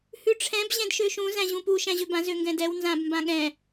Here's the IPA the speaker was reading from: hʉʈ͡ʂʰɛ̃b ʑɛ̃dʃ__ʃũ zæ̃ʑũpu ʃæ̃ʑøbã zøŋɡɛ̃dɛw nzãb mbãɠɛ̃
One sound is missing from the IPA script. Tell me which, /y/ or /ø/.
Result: ø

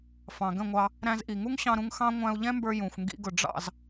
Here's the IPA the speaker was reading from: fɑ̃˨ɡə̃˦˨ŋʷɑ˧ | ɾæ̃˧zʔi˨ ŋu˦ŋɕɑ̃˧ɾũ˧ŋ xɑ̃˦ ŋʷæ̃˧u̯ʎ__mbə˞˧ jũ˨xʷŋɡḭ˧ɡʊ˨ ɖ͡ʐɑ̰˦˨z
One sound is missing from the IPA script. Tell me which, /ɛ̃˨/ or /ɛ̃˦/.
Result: ɛ̃˦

